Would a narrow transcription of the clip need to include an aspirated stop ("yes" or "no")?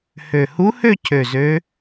yes